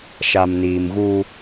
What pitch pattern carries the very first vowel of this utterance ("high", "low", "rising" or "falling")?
low